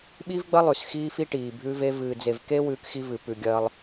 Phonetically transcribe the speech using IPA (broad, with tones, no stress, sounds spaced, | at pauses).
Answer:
ɓ i˦ v ɡ͡b ɐ˦ lˠ ʉ˨ s x iː˦ f i˦ ʈ iː˨ bʱ ʉ˦ v e˦ v ɨː˨ d͡z e˨ v k e˦ w ʉː˦ k x i˦ v ɨ˨ p ʉ˨ ɡʲ ɐː˦ lˠ